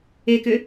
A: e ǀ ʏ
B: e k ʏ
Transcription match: B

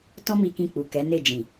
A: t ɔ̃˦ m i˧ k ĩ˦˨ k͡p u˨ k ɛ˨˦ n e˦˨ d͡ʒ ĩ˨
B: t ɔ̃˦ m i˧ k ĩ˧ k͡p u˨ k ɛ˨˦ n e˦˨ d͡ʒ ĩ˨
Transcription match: B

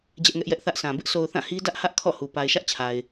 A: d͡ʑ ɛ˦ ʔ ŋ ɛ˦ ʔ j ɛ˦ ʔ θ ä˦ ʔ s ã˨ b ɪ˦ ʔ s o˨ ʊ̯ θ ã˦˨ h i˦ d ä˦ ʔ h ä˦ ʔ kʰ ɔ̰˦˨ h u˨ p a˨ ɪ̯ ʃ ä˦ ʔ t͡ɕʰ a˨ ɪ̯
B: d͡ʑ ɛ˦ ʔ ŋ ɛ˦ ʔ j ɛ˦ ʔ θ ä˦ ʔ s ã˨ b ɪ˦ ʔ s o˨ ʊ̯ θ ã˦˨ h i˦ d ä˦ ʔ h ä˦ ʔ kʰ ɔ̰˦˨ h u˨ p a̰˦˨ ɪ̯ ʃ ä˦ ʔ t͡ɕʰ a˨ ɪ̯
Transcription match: A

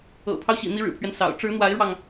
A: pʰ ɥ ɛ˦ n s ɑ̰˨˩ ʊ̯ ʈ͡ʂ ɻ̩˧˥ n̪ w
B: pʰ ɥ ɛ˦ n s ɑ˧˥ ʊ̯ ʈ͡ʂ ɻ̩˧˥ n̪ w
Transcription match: A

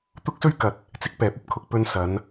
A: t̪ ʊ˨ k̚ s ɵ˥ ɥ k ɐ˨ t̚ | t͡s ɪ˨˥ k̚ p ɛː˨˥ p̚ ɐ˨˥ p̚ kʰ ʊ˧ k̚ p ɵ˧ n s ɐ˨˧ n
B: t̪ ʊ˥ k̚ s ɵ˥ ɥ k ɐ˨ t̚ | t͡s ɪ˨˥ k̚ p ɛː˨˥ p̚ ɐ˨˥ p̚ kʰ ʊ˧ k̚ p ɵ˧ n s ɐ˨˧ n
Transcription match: B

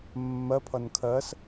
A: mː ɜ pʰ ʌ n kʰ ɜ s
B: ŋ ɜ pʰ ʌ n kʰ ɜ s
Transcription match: A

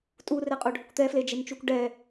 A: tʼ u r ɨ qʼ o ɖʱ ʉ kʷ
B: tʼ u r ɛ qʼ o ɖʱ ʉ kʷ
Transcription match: B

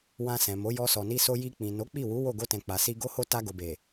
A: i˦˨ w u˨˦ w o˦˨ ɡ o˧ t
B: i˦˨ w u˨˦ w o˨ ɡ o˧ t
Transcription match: A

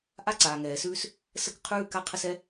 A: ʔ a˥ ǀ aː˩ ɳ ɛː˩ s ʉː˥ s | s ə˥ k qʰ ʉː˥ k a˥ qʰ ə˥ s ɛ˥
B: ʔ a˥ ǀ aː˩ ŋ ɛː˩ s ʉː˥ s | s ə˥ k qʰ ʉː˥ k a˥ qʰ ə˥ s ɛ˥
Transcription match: B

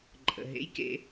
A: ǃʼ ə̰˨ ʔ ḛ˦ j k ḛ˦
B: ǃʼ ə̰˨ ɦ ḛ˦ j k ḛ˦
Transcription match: B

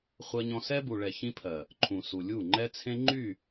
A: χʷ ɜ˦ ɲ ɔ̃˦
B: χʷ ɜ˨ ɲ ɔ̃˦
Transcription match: A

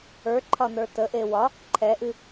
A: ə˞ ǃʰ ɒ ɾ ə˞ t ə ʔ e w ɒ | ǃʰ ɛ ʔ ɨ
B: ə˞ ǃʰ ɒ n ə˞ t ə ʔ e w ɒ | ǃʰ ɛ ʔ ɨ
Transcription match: B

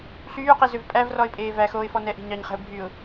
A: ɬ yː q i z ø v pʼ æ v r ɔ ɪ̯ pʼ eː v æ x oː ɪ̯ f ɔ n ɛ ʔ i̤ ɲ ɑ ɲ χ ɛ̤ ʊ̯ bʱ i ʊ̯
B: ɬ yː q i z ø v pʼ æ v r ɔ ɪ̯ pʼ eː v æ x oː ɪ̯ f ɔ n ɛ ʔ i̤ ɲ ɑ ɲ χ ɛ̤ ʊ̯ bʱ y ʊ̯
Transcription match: B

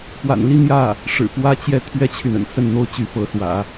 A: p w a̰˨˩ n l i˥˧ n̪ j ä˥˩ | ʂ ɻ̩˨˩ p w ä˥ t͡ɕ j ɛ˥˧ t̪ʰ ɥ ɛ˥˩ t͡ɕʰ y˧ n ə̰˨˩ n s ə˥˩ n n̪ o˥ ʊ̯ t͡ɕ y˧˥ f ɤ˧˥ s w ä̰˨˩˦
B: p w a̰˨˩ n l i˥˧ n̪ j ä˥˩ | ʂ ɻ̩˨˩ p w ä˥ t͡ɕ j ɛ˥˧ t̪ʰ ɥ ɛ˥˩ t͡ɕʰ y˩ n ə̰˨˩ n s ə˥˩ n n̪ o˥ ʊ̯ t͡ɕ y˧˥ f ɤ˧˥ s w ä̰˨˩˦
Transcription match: B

